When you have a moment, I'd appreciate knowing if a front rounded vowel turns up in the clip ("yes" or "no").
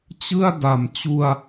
no